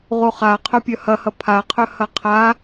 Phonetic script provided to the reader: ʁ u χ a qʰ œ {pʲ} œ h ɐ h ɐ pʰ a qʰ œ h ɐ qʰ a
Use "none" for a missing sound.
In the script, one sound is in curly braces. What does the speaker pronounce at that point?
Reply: pʲ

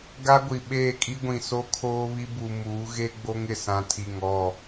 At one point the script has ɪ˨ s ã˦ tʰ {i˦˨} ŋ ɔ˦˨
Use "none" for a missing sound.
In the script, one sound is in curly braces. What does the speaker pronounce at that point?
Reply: i˦˨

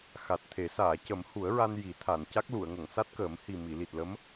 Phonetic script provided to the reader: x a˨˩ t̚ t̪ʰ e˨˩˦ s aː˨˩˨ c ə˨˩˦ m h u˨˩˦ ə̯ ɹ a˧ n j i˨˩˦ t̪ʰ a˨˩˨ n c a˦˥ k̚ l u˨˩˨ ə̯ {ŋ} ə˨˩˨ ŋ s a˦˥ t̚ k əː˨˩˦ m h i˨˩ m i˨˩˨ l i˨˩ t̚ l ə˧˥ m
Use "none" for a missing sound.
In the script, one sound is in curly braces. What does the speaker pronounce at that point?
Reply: ŋ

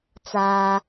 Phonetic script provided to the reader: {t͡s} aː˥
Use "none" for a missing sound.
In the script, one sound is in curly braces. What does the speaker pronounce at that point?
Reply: t͡s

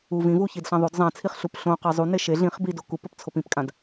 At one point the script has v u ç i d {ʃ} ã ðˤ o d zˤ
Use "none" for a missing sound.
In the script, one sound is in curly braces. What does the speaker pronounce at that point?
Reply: ɬ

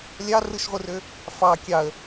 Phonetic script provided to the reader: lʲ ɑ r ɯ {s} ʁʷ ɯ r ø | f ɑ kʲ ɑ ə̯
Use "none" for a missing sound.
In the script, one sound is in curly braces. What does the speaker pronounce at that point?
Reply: ʃ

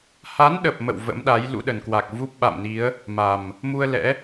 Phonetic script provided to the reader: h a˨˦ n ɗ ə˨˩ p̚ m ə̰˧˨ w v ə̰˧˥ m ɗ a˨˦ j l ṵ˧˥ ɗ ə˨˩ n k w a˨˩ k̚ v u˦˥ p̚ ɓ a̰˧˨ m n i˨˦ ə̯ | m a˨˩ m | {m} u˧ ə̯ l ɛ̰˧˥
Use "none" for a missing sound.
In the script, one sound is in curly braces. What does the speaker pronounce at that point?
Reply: m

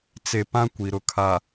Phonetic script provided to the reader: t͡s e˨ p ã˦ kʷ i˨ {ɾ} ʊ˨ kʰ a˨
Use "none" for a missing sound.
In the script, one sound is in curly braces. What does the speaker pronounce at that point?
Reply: ɾ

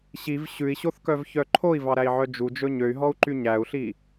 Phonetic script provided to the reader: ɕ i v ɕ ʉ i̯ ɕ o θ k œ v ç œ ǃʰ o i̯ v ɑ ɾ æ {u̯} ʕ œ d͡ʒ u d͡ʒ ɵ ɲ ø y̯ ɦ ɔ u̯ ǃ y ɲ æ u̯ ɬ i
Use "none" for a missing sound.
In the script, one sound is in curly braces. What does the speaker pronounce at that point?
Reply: i̯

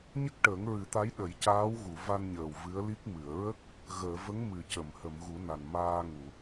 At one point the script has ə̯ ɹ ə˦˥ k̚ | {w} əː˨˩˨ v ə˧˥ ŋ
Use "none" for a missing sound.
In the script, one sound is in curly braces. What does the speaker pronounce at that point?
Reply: ɣ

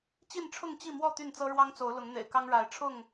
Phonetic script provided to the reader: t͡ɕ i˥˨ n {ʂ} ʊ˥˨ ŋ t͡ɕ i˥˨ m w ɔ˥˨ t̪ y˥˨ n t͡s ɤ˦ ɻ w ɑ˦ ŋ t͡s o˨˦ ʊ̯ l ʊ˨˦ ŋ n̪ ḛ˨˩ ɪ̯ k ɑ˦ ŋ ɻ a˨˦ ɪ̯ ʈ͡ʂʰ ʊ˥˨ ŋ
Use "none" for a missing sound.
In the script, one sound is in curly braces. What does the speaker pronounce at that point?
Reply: ʈ͡ʂʰ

